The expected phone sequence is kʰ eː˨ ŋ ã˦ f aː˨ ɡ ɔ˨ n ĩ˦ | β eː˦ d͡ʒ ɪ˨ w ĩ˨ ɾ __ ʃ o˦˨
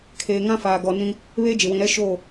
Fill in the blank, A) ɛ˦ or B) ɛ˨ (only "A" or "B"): A